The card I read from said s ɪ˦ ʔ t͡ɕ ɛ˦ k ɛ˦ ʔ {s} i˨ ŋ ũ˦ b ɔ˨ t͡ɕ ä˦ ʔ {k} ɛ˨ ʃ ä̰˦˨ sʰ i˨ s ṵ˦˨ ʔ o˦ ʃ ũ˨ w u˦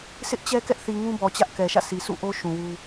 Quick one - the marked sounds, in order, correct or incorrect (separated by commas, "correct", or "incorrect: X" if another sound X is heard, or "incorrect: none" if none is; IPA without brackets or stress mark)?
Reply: incorrect: θ, correct